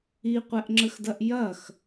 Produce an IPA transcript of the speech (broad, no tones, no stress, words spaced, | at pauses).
iqʷɛʔŋ͡ǁəxdɐʔ jɐx